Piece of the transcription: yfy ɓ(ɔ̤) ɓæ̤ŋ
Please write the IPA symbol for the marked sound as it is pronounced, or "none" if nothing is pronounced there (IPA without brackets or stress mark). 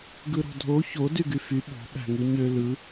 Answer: o̤